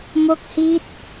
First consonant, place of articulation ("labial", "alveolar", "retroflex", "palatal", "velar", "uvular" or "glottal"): labial